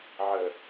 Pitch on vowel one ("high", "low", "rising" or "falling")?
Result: low